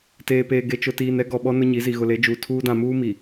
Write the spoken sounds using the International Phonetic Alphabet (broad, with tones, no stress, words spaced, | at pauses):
teː˨peː˨ ɡe˨t͡ʃʊ˨tiː˨nɛ˦ ɡɔ˨ɓɔ˦ nʊ˦ɲi˨˦zi˨ ɣʊ˨le˨˦ d͡ʒuː˨tʰuː˦ dã˨muː˦mi˨